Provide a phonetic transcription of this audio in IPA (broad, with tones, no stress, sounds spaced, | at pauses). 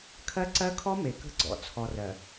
kʰ ɜ˦ ǀ ɜ˦ kʰ ɔ˦ m e˨ k ə̤˦ ɡ͡ǀ ɔ̰˨ t͡sʰ ɔ˨ r ɜ˨